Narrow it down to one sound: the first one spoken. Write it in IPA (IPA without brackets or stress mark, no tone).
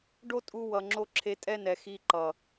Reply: ɖ